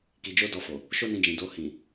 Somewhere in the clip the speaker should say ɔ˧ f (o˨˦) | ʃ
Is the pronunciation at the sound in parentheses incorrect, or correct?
incorrect